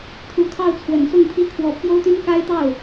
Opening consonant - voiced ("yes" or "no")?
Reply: no